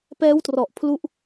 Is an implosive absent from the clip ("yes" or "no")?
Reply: yes